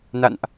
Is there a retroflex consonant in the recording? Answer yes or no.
no